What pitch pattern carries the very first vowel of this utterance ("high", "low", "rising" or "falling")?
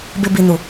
low